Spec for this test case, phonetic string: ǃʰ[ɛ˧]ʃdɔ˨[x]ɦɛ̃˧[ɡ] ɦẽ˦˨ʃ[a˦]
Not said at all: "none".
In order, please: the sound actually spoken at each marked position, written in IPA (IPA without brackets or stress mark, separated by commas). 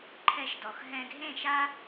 ɛ˧, x, ɡ, a˦